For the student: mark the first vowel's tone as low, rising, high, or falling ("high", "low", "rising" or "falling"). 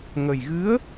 low